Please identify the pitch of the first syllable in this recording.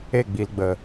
falling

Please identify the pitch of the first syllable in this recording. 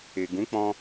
low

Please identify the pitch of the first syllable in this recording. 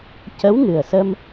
rising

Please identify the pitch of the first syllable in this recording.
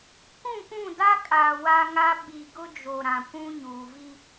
falling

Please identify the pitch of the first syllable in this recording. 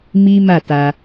high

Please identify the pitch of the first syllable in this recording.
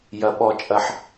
low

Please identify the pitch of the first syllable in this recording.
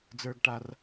low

